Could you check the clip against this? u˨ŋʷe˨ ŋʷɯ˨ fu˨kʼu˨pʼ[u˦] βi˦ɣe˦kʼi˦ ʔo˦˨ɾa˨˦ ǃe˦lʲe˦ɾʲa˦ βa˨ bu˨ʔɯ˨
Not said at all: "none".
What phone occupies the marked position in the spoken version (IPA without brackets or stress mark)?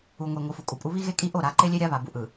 u˦